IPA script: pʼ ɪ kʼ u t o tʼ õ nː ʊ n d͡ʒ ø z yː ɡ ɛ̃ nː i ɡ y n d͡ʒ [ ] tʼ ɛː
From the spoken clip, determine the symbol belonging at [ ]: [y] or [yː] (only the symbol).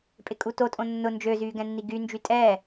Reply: y